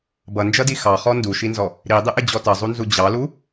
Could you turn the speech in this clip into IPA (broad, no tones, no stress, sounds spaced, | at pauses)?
b ʌ n d͡ʒ ʌ d i x ɑ χ ɔ n d u ʃ i n z ɔ | ɾ i dˤ ɪ ʔ ɪ d͡ʑ ɔ t ʌ zˤ u n z u d͡ʑ ɑ l u